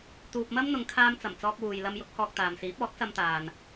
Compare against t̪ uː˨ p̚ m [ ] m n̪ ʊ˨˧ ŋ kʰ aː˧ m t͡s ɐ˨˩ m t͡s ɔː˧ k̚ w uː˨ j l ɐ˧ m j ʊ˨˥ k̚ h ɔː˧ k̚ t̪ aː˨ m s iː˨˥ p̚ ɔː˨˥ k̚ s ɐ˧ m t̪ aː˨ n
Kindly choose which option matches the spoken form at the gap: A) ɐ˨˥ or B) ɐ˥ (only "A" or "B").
B